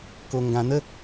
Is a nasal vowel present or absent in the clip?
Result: present